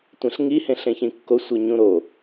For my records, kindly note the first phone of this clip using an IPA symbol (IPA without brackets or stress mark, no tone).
tʷ